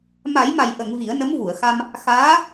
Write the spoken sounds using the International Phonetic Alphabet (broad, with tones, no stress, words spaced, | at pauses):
ma˨˩˦jma˨˩jʔə˨˩˨ŋ vi˨˩˦ə̯nə˧˥mvu˨˩˨ə̯xa˧m | xaː˧˥